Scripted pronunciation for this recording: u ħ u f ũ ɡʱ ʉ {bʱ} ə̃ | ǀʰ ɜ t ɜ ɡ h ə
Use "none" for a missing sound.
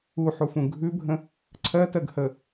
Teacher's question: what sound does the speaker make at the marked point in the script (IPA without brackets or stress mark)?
bʱ